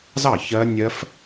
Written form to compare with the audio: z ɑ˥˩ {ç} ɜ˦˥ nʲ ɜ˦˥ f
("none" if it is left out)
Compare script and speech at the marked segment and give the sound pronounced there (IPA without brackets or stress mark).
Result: ç